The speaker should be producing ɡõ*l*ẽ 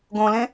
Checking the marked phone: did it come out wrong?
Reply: no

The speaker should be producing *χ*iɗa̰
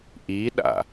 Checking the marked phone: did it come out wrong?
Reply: yes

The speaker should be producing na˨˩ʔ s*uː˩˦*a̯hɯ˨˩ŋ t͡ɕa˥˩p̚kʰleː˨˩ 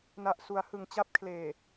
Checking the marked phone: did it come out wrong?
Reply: yes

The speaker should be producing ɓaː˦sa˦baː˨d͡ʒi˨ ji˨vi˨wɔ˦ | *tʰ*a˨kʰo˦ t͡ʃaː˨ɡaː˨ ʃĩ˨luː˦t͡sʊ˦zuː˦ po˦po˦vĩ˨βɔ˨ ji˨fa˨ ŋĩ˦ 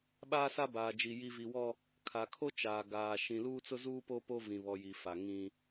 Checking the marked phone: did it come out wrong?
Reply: yes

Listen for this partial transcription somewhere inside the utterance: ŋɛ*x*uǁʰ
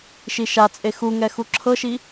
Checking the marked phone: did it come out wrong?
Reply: no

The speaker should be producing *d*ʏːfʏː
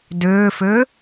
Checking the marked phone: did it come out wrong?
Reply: no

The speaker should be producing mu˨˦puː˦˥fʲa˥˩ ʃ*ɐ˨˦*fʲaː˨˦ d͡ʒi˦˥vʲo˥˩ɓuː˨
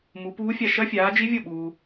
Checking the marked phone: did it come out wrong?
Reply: yes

